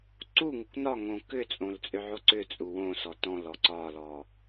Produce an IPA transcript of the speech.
ǀ u ŋ u kʷ n ɒ ŋ õ k ʏ t͡sʼ õ l t͡sʼ ʏ ʕ o ǀ ʏ t͡sʼ u w õ s ɔ t ɔ̃ l ɔ ǀ ɒ l ɔ

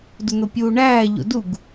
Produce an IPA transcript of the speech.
d u n̪ o pʲ uː ɳ æː ʎ o̰ d u ɡ

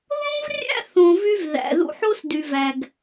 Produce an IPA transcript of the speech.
ð õ˦ v rʲ æ̰˦ θ õ˧ v y˦ v ð æ̰˨ ð ṵ˧ ħ o˦ s d y˨ v æ˨ ɡ

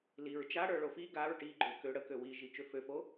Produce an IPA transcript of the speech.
l i ɹ t͡ʃ a ɽ ə˞ ɭ o f i ɡ a ɹ ʈ i ɡ͡ǃ ø k ø ɽ ə k ø w i ʒ i t͡ʃ ø f ø f o

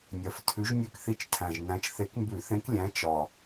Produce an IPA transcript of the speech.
nʲ ɜ˨˩ f tʰ ʉ˨˥ ʒ nʲ ʉ˦˨ k θ i˦˨ t͡ʃ tʰ æ̃˨˩ ʒ n æ̃˨˥ t͡ʃ θ e˨˥ k m b ʉ˧˩˧ θ ẽ˨˥ k lʲ æ̃˨˥ t͡ʃ ɒ˨˩

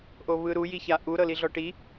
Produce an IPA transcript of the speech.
ʔ o β ɯ ɾ u j i ç a ʔ u ɾ ɤ l i ɮ ɔ ʈ i

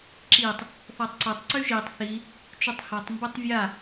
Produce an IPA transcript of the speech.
ǁ i tˤ | θ ɔ tˤ ǀ ʌ tˤ ǀ y ʒ i tˤ θ i | t͡ʃ y tˤ h ɔ tˤ m b ə tˤ vʲ a

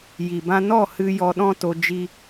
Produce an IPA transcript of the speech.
j i˨ b ã˧ n ɔ˦˨ h ɨ˧ j ɔ˧ ɗ ɔ̃˦ t o˧ d͡ʒ i˧

